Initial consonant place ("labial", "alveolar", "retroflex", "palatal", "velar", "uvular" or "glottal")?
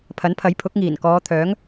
labial